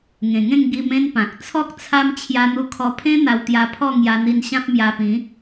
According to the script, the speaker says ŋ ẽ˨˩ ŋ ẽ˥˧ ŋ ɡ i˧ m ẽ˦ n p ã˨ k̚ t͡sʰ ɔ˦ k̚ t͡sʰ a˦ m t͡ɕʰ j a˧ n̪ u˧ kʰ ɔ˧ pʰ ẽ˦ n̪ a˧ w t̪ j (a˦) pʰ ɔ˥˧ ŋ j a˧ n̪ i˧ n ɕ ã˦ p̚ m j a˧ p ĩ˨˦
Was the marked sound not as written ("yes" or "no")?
yes